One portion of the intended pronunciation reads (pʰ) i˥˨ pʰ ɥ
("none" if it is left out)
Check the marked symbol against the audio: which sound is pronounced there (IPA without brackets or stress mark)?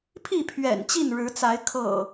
pʰ